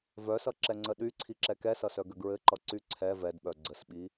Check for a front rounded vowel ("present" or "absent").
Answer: present